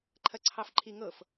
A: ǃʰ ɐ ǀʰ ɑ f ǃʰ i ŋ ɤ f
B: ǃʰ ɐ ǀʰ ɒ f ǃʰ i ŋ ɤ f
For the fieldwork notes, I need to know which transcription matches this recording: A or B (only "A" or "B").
A